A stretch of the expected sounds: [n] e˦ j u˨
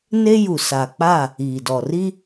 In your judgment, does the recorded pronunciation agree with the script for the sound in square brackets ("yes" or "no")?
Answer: yes